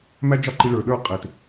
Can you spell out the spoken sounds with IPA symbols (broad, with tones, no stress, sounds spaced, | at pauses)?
m æ˦ d͡ʒ ɑ˦ ǃ i˧ ɭ ə˞˨ ɗ ə˞˦˨ qʼ e˨ t